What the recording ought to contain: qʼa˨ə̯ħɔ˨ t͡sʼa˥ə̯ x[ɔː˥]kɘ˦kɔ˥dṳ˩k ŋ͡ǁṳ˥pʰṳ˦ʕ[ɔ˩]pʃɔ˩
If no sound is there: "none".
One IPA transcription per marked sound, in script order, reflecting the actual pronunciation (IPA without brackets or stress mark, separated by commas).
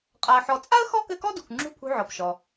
ɔ˥, ɔ˩